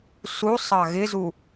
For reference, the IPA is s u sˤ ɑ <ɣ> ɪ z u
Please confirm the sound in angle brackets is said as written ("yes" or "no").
yes